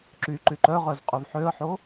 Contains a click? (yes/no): yes